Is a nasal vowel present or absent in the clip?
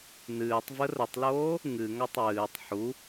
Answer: absent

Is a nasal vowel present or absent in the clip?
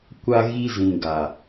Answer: present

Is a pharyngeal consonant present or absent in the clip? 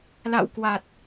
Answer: absent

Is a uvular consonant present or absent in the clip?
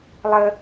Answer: absent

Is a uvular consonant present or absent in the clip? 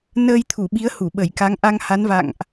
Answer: absent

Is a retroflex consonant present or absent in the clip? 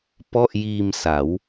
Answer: absent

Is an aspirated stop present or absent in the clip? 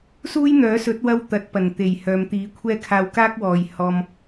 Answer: present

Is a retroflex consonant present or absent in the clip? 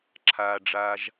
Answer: present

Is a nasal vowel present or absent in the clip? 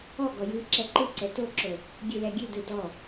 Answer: absent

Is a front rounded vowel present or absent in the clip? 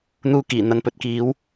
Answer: absent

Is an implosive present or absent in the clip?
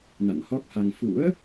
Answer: absent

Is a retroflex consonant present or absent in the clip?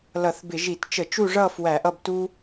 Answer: present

